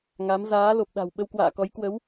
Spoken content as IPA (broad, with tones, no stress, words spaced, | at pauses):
ŋa˨˦m zaː˨˦ lo˨˩p̚ɗa̤˨˩w ɓə˧wkwa̰ː˧˨kɔ˨˦j kwə˨˦w